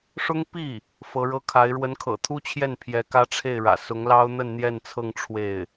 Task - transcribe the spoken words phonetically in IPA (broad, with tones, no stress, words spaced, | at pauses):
ʂʊ˥ŋ pi˥˩ | fɤ˧˥ɻɤ˥kʰa˧˥ɪ̯ ɻwə˧˥nkʰɤ̰˨˩t̪ʰu˥t͡ɕʰjɛ˥˩n pʰjɛ˧˥kä˥ʈ͡ʂʰe˥˩ɪ̯ɻä̰˨˩ sʊ˧˥ŋlɑ˥ʊ̯n̪ə˥˧n n̪jɛ˥˧nt͡sʰɤ˥˧ŋ ʈ͡ʂʰwe˥˩ɪ̯